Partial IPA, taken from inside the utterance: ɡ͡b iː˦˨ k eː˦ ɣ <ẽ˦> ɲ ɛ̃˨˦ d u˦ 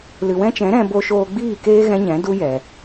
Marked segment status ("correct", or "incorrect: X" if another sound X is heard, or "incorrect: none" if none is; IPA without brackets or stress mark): incorrect: ɛ̃˦